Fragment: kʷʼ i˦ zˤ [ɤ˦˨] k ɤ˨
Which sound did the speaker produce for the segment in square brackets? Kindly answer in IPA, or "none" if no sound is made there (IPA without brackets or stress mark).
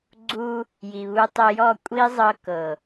ɤ˧